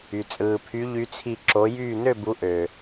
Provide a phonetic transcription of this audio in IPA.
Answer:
y˩ t͡sʼɯː˩pʰy˨˦ʎy˨˦t͡sʰi˧˩ ǁo˨˦jyː˥˨ nø˥˨bu˨˦ ʔø˩

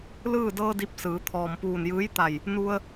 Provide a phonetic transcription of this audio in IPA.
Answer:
lɯː˥˨ dɤː˧ di˧˥p̚ sɯː˩˧ t̪ʰɔː˩m puː˧˩njɯː˧˥jt̪a˧˩j | nu˧ə̯

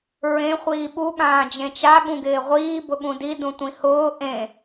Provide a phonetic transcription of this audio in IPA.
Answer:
ɹẽ χʷiːɓu ɠãːd͡ʒẽt͡ʃa ɠũɡɪːʁʷiː bʊɠũdi dũtʷĩhʊː ʔẽ

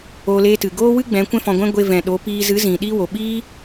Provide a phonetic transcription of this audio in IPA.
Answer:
o˧ le˧tɨ˨ɡoː˦wɨ˦ ɡ͡bɛ̃˨˦ kʷɛ̃˦fɔ̃˧ɡʷɛ̃˦ ɡʷe˧vɛ̃˨ɗo˨˦ piː˧ zɨ˨˦zĩ˨ ɗi˧ wo˨ɓiː˦

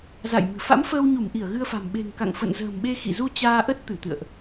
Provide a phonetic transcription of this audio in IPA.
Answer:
za̰˧˨jmɨ̤˨˩ fa̰˧˥mfəː˧wɲu˧˩mʔi˧˩ə̯ ɣɨ˧ə̯fa̤˨˩m ɓe̤˨˩ŋka̰˧˨ŋ fə̰˧˨nzə̤ː˨˩mɓe˧ xḭ˧˨zu˧ t͡ɕaː˧ʔə˦˥t̚ t̪ɨ˧˩t̪ɨ̰˧˨ə̯ʔ

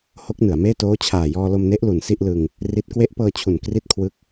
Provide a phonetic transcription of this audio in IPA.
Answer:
ho˦˥k̚nɯ˩˦a̯meː˥˩ toː˦˥t͡ɕʰaː˨˩ jɔː˧lo˧mne˦˥ʔ lu˨˩nsi˥˩ʔlɯ˧ŋ | ri˦˥t̚ kwe˦˥ʔpɤː˧t͡ɕʰu˨˩n kri˥˩t̚kʰwɯ˦˥k̚

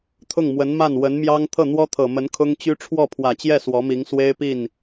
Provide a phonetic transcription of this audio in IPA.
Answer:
t̪ʰʊ˥˩ŋmwə˧˥nma˥˩n wə˧˥nmjɑ˥ŋ t̪ʰɤ˥˩n̪wɔ˥t̪ʰɤ˨˩mə˧˥n kʰʊ˥ŋt͡ɕy˥ ʈ͡ʂʰwɔ˥˩pʰwä˨˩t͡ɕjɛ˥˩ swɔ˧˥mi˧˥ŋswe˥ɪ̯ pi˥˩n

